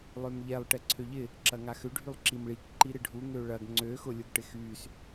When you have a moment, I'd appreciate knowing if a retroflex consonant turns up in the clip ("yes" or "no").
yes